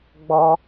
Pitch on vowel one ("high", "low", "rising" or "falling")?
high